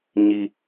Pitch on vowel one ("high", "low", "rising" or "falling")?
high